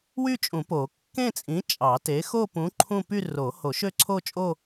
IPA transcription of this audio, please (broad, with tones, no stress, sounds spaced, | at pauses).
w y˥˧ t͡ʃʼ ũ˨˩˦ p o˨˩˦ kː ẽ˥˧ t͡sʼ ĩ˨˥ t͡ʃʼ ɑ˨˩˦ t e˨˥ x o˥˧ p ũ˨˥ ǃʰ ũ˥˧ p y˥˧ r o˨˩˦ h o˨˩˦ ʃ ø˥˧ ǀʰ o˥˧ t͡ʃʼ o˥˧